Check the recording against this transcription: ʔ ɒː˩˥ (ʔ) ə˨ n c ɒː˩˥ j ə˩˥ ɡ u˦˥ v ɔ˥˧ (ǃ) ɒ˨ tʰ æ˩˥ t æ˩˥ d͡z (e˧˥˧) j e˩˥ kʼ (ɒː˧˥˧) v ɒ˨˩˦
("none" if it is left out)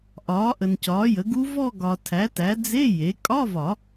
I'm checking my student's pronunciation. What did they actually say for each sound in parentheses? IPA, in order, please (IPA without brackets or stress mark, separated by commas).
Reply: ʔ, ɡ, e˧˥˧, ɒ˧˥˧